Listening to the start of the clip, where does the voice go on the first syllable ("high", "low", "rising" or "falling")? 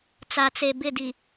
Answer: low